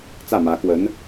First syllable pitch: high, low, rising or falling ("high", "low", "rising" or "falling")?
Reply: falling